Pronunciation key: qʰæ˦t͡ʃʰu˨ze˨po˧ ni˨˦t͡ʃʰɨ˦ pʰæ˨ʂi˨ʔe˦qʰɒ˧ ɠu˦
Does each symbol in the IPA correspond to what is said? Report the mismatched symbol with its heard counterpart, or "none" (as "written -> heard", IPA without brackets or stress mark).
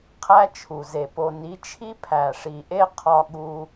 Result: ɨ˦ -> i˦